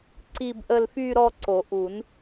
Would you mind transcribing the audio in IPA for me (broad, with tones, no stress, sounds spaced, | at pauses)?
ǀ i˥˧ b ʔ ə˥˧ l f y˥˧ ɾ ɔ˥˧ ǀ o˨˩˦ ʔ u˨˩˦ n